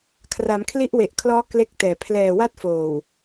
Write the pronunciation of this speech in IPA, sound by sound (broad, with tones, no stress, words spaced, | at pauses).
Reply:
kʰra˩˦mkʰli˦˥ʔwe˨˩ʔkʰlɔː˦˥ kle˦˥k̚ tɛː˨˩ pʰlɛː˨˩wa˦˥t̚foː˨˩w